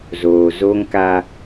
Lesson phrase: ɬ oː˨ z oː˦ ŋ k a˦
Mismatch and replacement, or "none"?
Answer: ɬ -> z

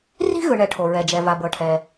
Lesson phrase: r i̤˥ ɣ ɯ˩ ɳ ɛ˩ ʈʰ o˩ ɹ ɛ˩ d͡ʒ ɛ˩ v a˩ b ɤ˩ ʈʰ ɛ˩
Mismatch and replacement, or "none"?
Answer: none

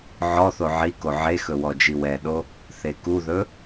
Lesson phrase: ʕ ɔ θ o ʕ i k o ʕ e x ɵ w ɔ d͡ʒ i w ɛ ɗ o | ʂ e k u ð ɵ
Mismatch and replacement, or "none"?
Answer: ʂ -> θ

